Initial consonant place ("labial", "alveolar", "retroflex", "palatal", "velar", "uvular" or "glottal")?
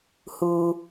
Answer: glottal